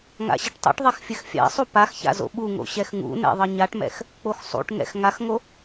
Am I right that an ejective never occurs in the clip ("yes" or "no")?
yes